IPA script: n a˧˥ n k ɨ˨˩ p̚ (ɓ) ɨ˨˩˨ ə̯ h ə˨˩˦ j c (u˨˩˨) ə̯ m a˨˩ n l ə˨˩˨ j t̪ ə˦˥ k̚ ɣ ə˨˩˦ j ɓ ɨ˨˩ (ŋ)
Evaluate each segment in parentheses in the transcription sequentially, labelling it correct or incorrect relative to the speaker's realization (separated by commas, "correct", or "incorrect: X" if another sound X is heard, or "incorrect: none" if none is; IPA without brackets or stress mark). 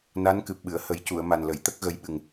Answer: correct, correct, correct